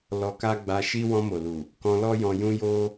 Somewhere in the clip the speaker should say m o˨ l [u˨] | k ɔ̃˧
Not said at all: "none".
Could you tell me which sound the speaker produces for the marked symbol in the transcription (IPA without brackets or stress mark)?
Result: u˨